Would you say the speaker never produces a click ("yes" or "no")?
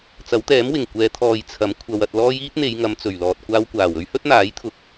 yes